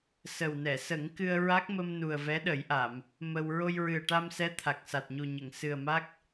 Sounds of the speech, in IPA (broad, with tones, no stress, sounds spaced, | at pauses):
s ə˨˩ w n ɛ˨˩˨ s ə˨˩˦ ŋ k ɨ˧ ə̯ ɹ a˦˥ k̚ m ə˧ m n u˨˩ ə̯ v ɛ˧˥ ɗ ə˨˩˦ j ʔ a˨˩˨ m | m ə˧ w ɹ o˧ j ɹ ɨ˨˩ ə̯ ʈ a˧ m s ɛ˧˥ t̪ʰ a˨˩ k̚ s a˨˩ t̚ ɲ u˨˩ ɲ ə˨˩˨ ŋ s ɨ˨˩ ə̯ m a˦˥ k̚